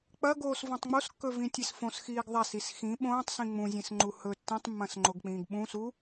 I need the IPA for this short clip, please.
k͡pɐɡoːsvõtˤ ŋ͡moskːɵvĩtʲes fõsxiːɡ ðˤasis xĩ ɓõːtˤsĩ ŋ͡mũzʲẽsŋ͡ǃu hɵ tːẽtˤmːɐ̃sŋ͡ǃoɡk͡pĩːɡ ɓũsu

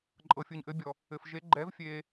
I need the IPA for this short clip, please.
ǃʼɤ˨fʲɯ˨ɲʔɘ˨˦bʲɔ˨ | ɘ˨fʒe˨˦ ɡ͡ǃɛ˨˦v fʲe˨

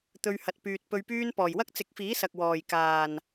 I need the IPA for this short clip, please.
t̪ɵ˧ɥhɐ˨t̚ pyː˨t̚ pɵ˧ɥpyː˥n pɔː˨˩jwɐ˥k̚t͡sɪ˨˥k̚fiː˨˥ sɐ˨k̚wɔː˨˩j kaː˨˩n

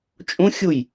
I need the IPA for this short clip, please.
t͡ʃʼũxʲuj

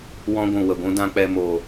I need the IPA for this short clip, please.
wɔ̃˦ɡʷũ˨wə˨ɡʷũ˦ dã˦k͡pɛ˧ mo˨

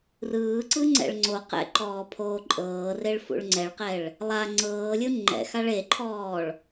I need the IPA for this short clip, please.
rɯːǀɯ ŋ͡ǀɛ̰ɭŋ͡ǀoqɛ̰ ǃɔːpʰoːǃʼɤːreɭ fṵɭŋ͡ǀɛɭqɛɭ | lˠa ŋ͡ǀɤːlʲɯ ŋ͡ǃɛ̰xaɭ eǃʰɔːɭ

